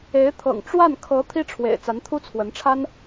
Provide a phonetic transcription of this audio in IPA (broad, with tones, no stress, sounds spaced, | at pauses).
e˧˥ ɪ̯ t̪ʰ ɤ̰˨˩ ŋ ʈ͡ʂ w a˥˩ n kʰ ɤ˧˥ t̪ʰ i˥ ʈ͡ʂʰ w ḛ˨˩ ɪ̯ t͡s a˧˥ n t̪ʰ u˥ t͡sʰ w ə˧˥ n ʈ͡ʂʰ a˥ n